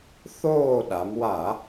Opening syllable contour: falling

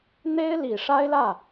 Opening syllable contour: high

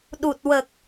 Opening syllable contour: low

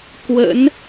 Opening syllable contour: rising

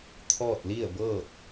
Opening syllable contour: falling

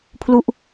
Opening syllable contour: falling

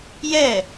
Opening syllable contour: falling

